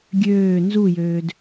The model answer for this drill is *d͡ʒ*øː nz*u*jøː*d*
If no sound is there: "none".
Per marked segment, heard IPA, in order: ɡʲ, u, d

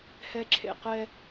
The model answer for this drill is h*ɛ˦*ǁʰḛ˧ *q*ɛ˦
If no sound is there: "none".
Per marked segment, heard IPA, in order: ɛ˦, q

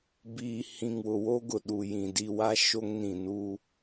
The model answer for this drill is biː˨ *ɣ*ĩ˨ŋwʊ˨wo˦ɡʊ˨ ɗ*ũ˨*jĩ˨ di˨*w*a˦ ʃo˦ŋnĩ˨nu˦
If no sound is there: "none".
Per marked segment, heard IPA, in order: h, u˨, w

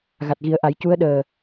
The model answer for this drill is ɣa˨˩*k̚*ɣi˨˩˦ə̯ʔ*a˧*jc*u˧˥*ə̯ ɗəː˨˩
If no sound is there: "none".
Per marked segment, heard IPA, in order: t̚, a˨˩˦, u˧˥

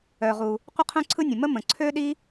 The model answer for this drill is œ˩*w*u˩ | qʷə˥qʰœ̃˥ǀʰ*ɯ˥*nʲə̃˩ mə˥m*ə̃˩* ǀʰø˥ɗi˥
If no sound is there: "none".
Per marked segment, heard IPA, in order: ʁ, ɯ˥, ə̃˩

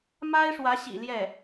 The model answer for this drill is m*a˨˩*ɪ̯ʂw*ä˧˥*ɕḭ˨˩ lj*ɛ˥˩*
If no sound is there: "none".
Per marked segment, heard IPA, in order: a˥, ä˧˥, ɛ˥˩

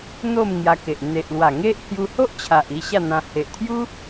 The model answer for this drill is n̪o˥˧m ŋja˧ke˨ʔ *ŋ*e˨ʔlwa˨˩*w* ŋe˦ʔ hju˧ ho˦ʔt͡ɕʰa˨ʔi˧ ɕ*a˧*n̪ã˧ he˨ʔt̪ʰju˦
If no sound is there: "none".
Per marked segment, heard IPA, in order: n̪, none, a˥˧

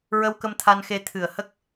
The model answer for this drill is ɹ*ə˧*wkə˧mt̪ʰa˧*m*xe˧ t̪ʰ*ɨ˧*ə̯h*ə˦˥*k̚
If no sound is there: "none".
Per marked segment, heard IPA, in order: ə˧, n, ɨ˨˩, ə˦˥

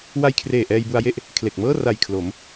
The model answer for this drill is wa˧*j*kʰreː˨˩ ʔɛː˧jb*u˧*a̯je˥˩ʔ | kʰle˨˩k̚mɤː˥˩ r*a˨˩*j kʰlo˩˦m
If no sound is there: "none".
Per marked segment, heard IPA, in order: j, u˧, a˨˩

